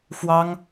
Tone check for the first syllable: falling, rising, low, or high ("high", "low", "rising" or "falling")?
high